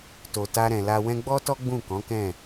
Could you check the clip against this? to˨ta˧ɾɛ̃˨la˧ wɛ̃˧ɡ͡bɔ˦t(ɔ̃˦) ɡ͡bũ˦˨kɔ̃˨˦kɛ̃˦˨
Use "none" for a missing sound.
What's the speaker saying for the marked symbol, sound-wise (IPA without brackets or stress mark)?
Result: ɔ˦